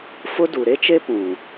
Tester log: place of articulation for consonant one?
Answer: labial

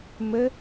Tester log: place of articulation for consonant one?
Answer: labial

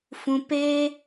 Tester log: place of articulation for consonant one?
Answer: labial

